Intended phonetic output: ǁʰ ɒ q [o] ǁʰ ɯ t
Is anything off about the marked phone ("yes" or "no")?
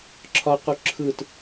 yes